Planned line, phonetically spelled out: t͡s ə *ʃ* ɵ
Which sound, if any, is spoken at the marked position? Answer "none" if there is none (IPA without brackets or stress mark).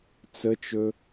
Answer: t͡ʃ